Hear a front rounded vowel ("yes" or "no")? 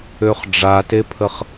yes